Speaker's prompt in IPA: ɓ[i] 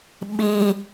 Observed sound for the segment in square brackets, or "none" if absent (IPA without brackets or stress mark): i